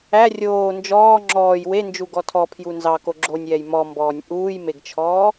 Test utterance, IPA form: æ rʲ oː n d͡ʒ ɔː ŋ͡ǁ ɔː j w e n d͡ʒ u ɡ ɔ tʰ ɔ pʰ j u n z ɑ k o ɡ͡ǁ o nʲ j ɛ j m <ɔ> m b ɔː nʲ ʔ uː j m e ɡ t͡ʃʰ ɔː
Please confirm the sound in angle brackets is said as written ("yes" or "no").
yes